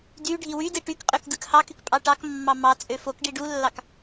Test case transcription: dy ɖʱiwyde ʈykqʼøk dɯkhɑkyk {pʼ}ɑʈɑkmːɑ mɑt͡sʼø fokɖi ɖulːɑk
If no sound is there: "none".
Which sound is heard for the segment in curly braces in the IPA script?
pʼ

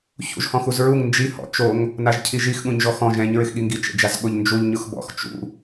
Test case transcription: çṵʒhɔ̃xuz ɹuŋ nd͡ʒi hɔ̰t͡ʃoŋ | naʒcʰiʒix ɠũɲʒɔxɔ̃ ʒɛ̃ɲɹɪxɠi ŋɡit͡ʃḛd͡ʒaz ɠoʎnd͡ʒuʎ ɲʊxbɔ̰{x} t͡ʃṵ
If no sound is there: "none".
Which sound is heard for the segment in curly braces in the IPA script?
x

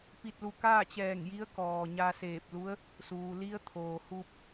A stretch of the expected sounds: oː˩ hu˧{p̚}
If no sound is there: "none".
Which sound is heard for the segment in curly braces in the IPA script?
p̚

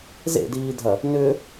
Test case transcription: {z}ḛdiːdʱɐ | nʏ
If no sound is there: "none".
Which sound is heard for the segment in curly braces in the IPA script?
z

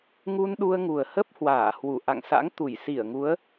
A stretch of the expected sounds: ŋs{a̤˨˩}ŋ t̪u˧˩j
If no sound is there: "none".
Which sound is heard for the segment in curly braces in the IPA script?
a̰˧˥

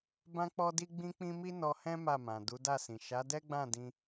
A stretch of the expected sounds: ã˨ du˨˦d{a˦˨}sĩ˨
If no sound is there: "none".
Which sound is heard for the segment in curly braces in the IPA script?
a˦˨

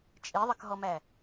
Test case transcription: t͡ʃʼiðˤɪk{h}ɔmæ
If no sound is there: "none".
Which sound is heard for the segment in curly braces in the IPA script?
ɦ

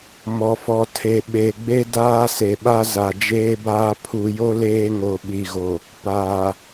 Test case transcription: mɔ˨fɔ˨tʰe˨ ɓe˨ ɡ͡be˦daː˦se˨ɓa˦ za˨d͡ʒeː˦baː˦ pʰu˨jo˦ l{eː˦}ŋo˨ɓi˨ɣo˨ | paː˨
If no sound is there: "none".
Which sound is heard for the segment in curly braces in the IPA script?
eː˦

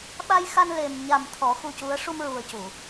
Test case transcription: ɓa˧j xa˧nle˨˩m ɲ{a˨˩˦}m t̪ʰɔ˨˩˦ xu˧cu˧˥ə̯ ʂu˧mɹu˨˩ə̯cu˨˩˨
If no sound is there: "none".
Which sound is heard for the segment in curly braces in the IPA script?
a˨˩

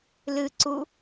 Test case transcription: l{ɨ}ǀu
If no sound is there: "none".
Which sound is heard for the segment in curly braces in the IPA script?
ɨ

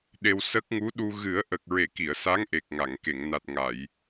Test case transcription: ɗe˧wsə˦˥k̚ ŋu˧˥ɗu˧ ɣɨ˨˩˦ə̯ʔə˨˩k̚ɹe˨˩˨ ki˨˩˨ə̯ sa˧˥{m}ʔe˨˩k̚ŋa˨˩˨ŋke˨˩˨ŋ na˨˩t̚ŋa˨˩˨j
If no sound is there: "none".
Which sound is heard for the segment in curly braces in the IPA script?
ŋ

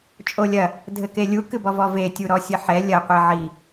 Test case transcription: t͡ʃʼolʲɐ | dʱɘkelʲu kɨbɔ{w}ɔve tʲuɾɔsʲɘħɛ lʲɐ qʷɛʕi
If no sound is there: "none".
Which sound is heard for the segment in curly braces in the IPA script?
v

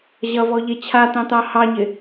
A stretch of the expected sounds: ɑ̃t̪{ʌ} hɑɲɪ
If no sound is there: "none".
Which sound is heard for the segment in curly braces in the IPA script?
ɑ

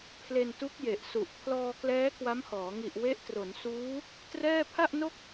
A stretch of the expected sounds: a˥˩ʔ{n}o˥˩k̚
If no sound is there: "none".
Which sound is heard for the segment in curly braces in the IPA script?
n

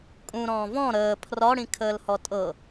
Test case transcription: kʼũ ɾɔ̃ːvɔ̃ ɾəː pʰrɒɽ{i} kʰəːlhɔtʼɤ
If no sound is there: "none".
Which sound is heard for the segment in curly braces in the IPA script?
ĩ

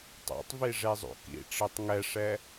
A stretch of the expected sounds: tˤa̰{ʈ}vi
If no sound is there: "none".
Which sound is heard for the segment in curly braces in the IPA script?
tˤ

